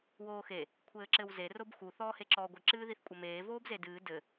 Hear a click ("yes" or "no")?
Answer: yes